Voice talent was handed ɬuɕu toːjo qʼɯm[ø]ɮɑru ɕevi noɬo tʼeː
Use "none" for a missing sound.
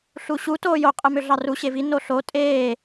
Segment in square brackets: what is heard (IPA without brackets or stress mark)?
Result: ø